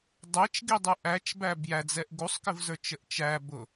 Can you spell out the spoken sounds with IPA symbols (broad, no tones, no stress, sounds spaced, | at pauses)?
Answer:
dˤ æ t͡ʃ ɡ i dˤ u ʔ æ t͡ʃ b æ b j æ d͡z ɛ ʔ ɡ u sˤ k ɪ v z ə˞ t͡ʃ ə ʔ t͡ʃ æ b ʊ